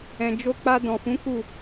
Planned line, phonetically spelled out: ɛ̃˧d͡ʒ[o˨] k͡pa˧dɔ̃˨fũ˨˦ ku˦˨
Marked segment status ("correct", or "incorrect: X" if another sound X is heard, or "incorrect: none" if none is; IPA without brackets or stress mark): incorrect: o˦